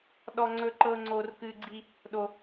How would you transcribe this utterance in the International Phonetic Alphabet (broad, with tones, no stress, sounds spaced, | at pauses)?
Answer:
ɗ ɔ˦ ŋ͡ǀ ɵ˦ ǃ ɤ˦ ŋ͡ǀ o˦ r k ɨ˦ ɡ͡ǀ i˦ | ɗ o˦